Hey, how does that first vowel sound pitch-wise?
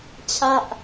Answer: falling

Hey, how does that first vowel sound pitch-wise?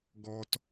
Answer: low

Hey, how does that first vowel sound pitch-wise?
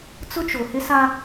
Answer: high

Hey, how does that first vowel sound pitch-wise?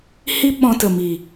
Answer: high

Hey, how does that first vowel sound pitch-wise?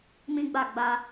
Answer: high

